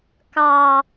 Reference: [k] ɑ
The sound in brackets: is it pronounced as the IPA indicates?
yes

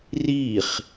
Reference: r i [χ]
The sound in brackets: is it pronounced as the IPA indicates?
yes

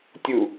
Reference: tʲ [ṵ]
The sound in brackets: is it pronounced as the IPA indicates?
no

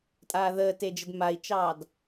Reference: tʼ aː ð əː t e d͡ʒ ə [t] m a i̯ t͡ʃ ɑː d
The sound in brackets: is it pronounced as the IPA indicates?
no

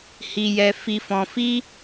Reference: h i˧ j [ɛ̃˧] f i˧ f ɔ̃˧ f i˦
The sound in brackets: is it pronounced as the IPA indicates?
no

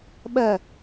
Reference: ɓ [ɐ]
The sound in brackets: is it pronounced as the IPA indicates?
yes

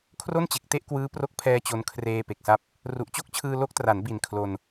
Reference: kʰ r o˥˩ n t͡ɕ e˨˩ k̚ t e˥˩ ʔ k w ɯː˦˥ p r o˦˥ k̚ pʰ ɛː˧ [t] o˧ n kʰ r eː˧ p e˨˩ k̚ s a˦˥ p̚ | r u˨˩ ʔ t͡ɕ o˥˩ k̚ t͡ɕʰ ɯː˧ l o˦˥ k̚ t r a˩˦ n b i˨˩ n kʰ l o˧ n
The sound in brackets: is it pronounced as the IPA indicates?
no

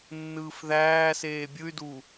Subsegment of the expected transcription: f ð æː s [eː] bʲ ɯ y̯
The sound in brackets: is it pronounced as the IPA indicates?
yes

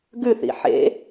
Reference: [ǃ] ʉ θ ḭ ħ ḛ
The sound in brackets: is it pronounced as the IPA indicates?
no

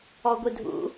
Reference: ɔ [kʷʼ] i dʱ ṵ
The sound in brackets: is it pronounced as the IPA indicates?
no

